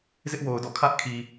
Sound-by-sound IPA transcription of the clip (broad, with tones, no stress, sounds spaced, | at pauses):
z ɪ˦ ʔ w o˨ ʊ̯ d ɔ̰˦˨ kʰ ä˦ ʔ kʰ i˨